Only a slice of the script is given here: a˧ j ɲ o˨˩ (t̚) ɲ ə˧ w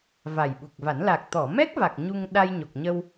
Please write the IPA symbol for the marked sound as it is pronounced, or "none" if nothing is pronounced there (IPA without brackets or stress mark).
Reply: k̚